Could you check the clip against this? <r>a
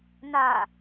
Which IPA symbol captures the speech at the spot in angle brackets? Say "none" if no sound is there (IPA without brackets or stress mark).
n